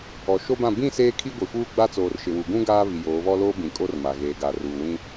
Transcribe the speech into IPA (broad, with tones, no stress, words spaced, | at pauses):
ɔ˨ ʃo˦bã˦˨ bĩ˦˨ seː˦kʰi˦ɡʷi˨ fuː˦ɡ͡ba˦t͡soː˨r ʃɪ˨wu˨ɡũ˦ ɡaː˦βi˨ joː˨˦βɔ˦loː˦bĩ˨ kʼo˦rma˨ɣeː˨ ɡa˨ruː˨ wĩ˦